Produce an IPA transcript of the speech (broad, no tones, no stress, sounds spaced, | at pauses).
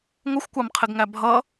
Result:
ŋʷ ʌ xʷ kʷ ɑ m qʰ ɪ ɡ ŋ æ bʱ ʌ